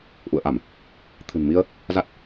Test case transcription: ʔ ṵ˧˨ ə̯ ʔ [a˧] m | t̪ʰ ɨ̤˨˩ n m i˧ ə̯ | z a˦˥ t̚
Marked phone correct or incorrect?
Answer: incorrect